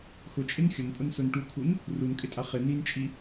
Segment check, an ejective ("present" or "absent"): present